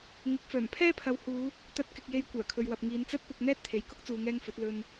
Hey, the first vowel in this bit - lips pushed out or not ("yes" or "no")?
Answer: no